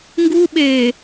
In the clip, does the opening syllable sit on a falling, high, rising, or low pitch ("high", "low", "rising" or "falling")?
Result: high